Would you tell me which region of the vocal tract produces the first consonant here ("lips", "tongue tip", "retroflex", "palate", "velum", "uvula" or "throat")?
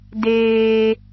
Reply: tongue tip